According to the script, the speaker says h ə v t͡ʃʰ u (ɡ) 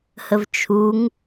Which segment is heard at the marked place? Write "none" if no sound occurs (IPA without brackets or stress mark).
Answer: ŋ